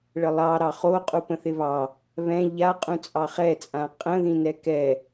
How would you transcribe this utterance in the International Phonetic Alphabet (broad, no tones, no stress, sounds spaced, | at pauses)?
ɭ ə lˠ ɑ ɾ ɑ χ o qʼ u p ə̃ θ ɪ β ɑ | β ɛ̃ ʎ a qʼ ũ t͡sʼ ɑ χ ɛ t͡sʼ ã qʼ ə̃ ð ĩ n ɛ k ɛ